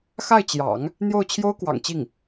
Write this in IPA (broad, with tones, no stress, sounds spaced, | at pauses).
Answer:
x a˥˩ ɪ̯ t͡ɕ j ɑ̰˨˩˦ ŋ | n̪ j o˥˩ ʊ̯ t͡ɕʰ j o˥ ʊ̯ k w ɑ̰˨˩ ŋ t͡ɕ i˥˩ ŋ